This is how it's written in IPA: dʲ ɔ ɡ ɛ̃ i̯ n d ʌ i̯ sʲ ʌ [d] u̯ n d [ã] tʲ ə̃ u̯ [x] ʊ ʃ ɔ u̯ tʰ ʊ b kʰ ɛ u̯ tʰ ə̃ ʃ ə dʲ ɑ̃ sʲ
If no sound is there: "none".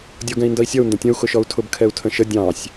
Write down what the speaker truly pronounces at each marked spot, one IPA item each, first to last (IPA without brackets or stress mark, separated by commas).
none, ə̃, x